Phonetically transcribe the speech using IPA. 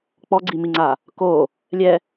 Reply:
k͡pɔɡ͡ǀimiŋ͡ǀa | ko | lʲɛ

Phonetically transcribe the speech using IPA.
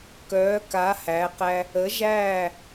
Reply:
kœː˩˧ka˩˧ hæ˩˧qæ˧ | ə˩˧ʒæː˧˩

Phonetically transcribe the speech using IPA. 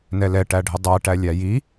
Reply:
nɛlɛ ʈæɖʱɪdˤæʈæ lʲæji

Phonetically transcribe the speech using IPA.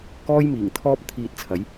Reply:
kɔː˥jmiː˨˩ŋt̪ʰɔː˥p̚ t̪ʰiː˧t̚t͡sʰɐ˨˥j

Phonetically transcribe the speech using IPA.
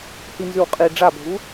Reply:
hinzʉwqʼi ɖ͡ʐabʱu

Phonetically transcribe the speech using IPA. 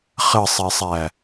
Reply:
χəsˤɛsˤæ

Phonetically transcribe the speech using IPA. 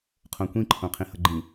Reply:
qʰõkʷĩǃʰõ qʰĩhʌɡ͡ǃĩ

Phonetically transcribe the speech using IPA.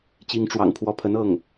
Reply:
t͡ɕi˧˥ŋʈ͡ʂwɑ̰˨˩ŋpʰwɔ˧˥pʰə˧˥n ɤ˥˩ŋ

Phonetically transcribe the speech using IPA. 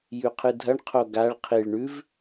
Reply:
jʉqʰɨdʱɐɳ qʰoɡaɭ qʰiɭ ɳʉv

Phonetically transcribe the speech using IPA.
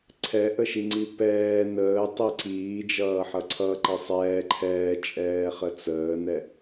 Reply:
ǀʰɛʔəʃiŋ͡ǀi pɛː nəːtˤi ǀiː d͡ʒʌːħʌǀʰʌ ǃɛsˤɛː ǃʰɛːt͡ʃʼɛː χət͡səːnɛ

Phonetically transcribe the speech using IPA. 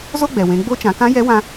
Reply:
zo˥ɡ͡bɛ˩wẽ˩˧ ɡ͡bo˧˥t͡ʃã˩˧kã˧˥ jɛ˧˥wã˧

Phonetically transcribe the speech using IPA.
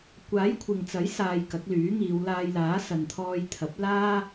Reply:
kʷaː˨˥j kʷʰɪ˨ŋt͡sɐ˨˥j saː˧jkɐ˨˥k̚lyː˨˥ŋiː˨˧w laː˧jlaː˨˥sɐ˨n t̪ʰɔː˧jt̪ʰɐ˨˥p̚ laː˥

